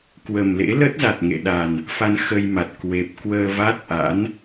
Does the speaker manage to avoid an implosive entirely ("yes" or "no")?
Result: no